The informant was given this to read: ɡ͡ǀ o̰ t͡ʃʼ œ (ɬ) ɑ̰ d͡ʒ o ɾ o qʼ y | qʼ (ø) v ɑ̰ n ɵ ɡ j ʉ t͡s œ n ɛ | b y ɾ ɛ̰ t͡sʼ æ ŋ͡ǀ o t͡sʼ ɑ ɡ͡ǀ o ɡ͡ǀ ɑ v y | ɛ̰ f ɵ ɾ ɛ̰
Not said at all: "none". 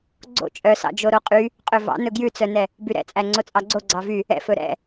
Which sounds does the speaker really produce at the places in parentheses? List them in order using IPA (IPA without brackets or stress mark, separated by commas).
s, ø